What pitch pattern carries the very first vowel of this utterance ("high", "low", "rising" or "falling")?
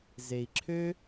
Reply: low